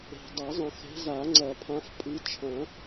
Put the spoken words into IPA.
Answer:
e̤˨ dˤɐ˨˩˦zˤɐ̃˨xe̤˨˦ za˨˩˦ŋ͡ǀɐ˨˩˦pʰã˨˦f pʼɨ˨˦t͡ʃʰɐ̃˨˩˦

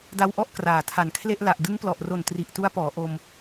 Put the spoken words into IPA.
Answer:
da˧wʔɔ˦˥ʔ kraː˨˩tʰa˨˩nkʰle˥˩ʔ la˨˩ʔdɯ˦˥ŋplɔ˨˩ʔ ro˨˩n tri˨˩ʔtu˦˥a̯pɔː˩˦ ʔo˧m

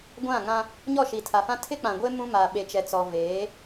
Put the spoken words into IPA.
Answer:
ɡʷã˦˨ŋã˦ | ɲɔ˦˨ʃi˨tʰa˨fã˦ tʰɪ˦k͡pã˨ɡʷe˦ mũ˦ma˨ ɓe˨t͡ʃɛ˨t͡sɔ˨ veː˨˦

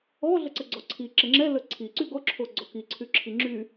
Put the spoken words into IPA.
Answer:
ɔ ɮəǀəɡ͡ǀɔǀʰi ǁəŋ͡ǁɛ ləǀʰi ǀyɡɔ ǁʰoɡ͡ǀɔki ǀʰyǁʰiŋ͡ǁy

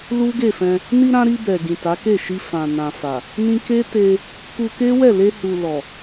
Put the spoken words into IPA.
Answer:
lu˦ɡe˦˨fɛ̃˧ | ni˧ɾã˧ ɾi˧ bɛ˨ ɡĩ˨ ta˨˦ke˦˨ʃi˧ fã˨ nã˨fa˨ | nĩ˧ke˦te˧ | ku˧ke˦wɛ˦˨ le˧hu˨lɔ˨

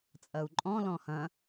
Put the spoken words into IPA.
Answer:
t͡sʼɐu̯ǃʼɔ̃ lɔ̃hɐ̃

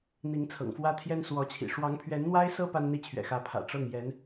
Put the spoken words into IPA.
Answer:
n̪i˧˥ŋt͡sʰɤ̰˨˩ŋfwä˥t̪ʰjɛ˥n swɔ˧˥t͡ɕʰḭ˨˩ ʂwɑ˧˥ŋpʰɥɛ˧˥nn̪wa˥ɪ̯sɤ˥ pa˥nn̪i˥˩t͡ɕʰɥɛ̰˨˩xä˧˥ pʰä̰˨˩ ʈ͡ʂɤ˥˩ŋjɛ˧˥n

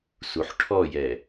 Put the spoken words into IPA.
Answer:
suħʈʰɔjɛ

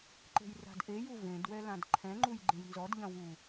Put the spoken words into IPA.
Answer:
ǃe̤jra̤dʔeju vẽdwɛ lãdǃʰɛ̃ŋ͡ǃuj ɡ͡ǃẽjnzɔdʎɐ̃ wu

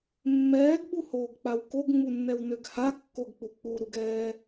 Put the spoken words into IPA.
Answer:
mːɛːɡɓuhoːɡk͡paw koɡŋ͡munːɛwnøɡ hakːoɡk͡pu k͡puɾuɡɛː

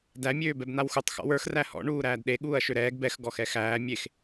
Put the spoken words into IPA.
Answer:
dæ mʲøːbɛbn̪awxutˤ xɔ̰wə˞x ræhɔ̰ ɳuːɾæːdɗe ɠuːɐ̯ʃøɾɛːɡ bɛx ɡɔxɛxæː mʲex

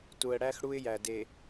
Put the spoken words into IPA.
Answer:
tu˨ə̯ɽæ˦x ɽu˦ɪ̯jæ˨de˨

